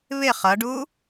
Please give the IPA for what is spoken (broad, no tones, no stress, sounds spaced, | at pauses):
β ɪ χ ʌ ɖ u